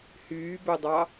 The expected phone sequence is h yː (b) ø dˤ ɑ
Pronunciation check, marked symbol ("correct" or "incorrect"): correct